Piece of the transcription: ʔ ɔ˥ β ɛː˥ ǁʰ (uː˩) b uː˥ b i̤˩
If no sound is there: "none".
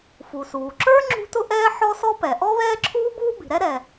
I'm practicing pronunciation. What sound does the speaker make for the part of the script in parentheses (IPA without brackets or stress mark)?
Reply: uː˥